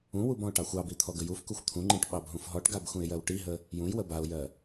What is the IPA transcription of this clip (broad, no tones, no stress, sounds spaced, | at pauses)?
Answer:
ũ w u b ɔ̃ ʊ̯ ʈ ɑ xʷ ɑ b i t̪ʰ ɔ ɡ ə j u f k u xʷ t̪ʰ ũ ŋ͡ǃ ĩ ʈ ɓ ɑ b ɦ ũ f ɦ ɔ ʈ ɡ a b x ũ ɪ̯ j ɜ w ʈ i ɦ ə | j ũ j w ə b a ʊ̯ j ɜ